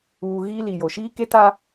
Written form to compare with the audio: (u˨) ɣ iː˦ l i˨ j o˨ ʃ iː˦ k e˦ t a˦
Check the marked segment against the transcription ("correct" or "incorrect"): incorrect